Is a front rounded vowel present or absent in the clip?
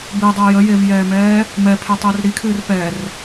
absent